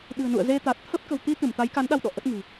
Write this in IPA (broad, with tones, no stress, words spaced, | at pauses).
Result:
ɗɨ̤˨˩ə̯nṵ˧˨ə̯ze˧t̪a˨˩t̚ t̪ʰə˦˥p̚ kə̤˨˩w t̪i˧ t̪ɨ˧˩mt̪a˨˦jka˨˦nɗa˧w ɗɔ̰˧˨ʔə˦˥t̚ŋɨ̤˨˩